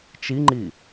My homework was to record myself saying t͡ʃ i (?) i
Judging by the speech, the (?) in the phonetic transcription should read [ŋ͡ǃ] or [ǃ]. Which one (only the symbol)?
ŋ͡ǃ